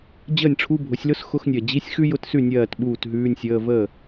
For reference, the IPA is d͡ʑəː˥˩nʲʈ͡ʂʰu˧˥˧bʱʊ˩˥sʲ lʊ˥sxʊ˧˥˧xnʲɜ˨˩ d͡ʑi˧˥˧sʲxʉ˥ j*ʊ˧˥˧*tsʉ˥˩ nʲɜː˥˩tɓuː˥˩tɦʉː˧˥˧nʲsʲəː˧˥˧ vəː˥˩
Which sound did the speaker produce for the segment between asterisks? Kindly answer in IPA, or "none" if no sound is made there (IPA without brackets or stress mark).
ʊ˧˥˧